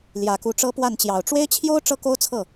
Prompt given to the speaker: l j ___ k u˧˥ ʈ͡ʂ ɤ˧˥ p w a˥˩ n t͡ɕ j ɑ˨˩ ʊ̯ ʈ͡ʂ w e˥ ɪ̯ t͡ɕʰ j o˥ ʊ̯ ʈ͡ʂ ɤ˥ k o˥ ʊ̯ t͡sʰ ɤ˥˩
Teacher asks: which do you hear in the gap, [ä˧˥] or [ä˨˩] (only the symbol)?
ä˨˩